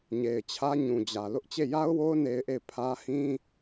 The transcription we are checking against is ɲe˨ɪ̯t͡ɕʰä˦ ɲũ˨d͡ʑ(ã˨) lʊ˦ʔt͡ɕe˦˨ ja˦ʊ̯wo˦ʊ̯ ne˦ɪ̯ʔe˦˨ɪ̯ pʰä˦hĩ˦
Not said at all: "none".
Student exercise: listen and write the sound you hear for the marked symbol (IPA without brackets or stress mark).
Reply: ä˨